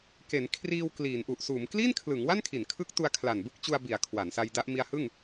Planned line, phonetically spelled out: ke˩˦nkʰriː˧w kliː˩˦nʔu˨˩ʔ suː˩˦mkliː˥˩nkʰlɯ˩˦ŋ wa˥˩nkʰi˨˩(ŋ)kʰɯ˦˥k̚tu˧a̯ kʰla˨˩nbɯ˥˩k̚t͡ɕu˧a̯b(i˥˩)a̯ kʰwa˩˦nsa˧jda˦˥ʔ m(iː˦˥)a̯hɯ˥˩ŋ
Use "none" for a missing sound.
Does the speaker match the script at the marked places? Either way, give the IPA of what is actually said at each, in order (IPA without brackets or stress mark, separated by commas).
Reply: n, i˩˦, i˦˥